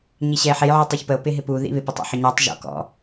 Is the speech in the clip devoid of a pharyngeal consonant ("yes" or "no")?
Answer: no